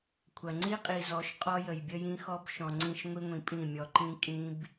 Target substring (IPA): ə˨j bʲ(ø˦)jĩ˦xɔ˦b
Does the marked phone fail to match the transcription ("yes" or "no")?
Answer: yes